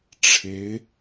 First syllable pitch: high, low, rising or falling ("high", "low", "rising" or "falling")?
rising